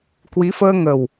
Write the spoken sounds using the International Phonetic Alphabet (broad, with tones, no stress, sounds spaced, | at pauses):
k w i˨˦ f əː˧ ŋ ə˨˩ w